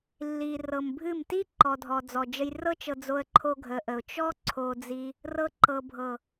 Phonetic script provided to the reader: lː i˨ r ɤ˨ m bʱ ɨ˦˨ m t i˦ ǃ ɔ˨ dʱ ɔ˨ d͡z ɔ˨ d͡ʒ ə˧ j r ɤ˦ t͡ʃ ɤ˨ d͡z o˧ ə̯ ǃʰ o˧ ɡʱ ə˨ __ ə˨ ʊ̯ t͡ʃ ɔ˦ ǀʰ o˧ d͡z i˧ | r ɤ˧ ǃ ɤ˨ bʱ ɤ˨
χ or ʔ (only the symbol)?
ʔ